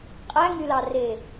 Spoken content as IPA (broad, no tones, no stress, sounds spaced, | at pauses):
qʼ æ ŋ y l ɑ r e